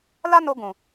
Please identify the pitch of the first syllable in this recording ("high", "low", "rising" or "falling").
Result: high